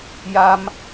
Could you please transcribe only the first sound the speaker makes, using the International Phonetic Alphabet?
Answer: j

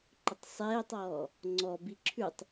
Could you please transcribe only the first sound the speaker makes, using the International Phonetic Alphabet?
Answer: ǃ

